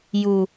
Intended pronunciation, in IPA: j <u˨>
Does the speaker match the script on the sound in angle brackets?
yes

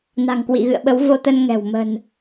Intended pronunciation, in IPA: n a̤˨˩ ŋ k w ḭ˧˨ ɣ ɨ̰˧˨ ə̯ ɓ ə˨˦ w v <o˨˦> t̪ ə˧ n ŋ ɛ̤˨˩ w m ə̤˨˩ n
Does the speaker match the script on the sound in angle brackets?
no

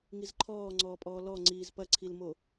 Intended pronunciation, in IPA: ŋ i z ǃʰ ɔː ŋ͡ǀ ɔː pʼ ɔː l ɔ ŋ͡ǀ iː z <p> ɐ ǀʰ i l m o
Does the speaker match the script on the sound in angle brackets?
yes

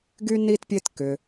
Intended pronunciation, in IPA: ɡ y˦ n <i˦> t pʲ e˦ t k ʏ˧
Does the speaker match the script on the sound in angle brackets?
yes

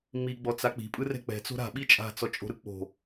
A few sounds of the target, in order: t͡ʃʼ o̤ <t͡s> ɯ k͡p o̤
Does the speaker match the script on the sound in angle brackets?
no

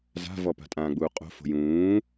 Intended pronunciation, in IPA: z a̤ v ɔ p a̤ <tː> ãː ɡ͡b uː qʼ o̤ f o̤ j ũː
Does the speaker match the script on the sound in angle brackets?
no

